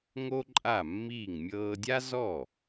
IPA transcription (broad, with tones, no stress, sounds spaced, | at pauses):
ŋ o˥ ǃʼ a˥˩ mː iː˥˩ ŋ mʲ ɤː˧ dʲ a˥ z ɔ˥˩